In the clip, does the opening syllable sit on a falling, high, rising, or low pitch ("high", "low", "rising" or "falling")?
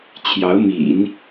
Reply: rising